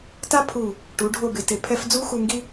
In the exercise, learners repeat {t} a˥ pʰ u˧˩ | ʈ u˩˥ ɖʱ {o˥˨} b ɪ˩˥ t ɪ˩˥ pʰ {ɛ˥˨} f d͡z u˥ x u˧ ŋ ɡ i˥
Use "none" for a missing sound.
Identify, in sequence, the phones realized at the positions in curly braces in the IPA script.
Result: t, o˥˨, ɛ˥

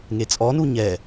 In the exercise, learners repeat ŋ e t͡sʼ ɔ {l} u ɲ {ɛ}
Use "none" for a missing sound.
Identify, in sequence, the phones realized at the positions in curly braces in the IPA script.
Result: n, ɛ

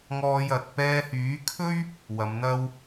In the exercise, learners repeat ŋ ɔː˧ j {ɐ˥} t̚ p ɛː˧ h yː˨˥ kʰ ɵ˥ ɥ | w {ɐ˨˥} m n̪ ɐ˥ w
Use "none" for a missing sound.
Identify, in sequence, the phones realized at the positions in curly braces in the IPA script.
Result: ɐ˨, ɐ˨˧

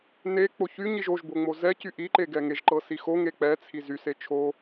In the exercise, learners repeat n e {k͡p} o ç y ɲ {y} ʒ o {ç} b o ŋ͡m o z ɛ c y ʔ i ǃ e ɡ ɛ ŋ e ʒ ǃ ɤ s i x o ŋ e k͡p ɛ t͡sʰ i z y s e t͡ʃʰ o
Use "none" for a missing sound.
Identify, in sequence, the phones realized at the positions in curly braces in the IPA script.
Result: k͡p, i, ʒ

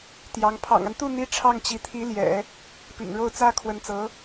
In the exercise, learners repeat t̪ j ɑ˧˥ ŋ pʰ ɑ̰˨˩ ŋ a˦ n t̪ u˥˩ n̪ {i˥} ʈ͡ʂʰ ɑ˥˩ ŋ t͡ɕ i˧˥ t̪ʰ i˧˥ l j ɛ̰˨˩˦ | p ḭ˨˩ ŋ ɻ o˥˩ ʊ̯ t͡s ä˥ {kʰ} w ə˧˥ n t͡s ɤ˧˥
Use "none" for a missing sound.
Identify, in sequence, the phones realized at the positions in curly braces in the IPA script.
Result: i˥, kʰ

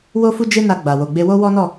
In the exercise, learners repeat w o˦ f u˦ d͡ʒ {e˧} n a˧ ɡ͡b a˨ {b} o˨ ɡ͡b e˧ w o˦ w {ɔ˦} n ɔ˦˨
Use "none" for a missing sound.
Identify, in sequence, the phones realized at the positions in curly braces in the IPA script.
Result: e˦, w, ɔ˦

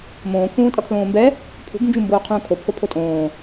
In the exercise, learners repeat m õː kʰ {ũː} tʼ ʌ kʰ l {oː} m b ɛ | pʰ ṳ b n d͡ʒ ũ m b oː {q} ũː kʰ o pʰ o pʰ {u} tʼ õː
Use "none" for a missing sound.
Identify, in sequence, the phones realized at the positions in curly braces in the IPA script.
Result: ũː, õː, qʰ, o

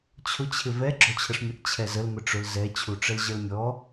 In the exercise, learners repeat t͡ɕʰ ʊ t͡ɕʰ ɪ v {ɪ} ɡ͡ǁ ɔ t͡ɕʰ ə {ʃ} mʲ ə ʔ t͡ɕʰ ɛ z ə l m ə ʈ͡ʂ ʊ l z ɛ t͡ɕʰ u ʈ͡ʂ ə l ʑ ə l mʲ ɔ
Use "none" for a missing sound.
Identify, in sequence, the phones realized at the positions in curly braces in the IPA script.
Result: ɛ, ʂ

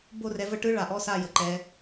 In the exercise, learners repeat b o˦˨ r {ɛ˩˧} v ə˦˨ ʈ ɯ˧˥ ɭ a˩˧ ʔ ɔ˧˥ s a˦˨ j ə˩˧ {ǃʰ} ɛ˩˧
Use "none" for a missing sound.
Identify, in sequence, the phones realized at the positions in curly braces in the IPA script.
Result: ɛ˩˧, ǃ

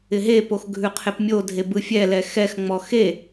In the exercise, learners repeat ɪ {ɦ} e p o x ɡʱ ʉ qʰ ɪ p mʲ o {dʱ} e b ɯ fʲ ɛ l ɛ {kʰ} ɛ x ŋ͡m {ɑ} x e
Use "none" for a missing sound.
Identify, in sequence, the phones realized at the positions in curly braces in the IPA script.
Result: ɦ, dʱ, x, ɔ

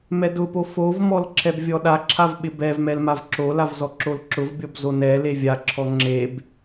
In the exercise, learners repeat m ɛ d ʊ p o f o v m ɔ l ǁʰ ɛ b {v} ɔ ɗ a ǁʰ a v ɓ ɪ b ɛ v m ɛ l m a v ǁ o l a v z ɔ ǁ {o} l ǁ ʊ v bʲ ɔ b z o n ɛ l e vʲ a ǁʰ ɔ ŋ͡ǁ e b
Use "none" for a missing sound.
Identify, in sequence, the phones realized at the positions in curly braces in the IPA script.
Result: vʲ, o

